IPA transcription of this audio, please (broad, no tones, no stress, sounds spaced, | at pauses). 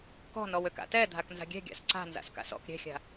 k ɔ̤ n ɔ w ø k a̰ t ɛ dʱ a k n z a̤ ɡʲ ɛ̤ ɡʲ a̰ s ǀ a̤ n z a̰ s k a̰ s ɔ̰ k ɾʲ ɛ̤ xʲ a̤